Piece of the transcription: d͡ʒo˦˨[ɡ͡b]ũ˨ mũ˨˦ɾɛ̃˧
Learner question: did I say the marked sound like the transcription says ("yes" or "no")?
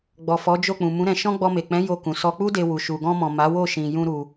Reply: no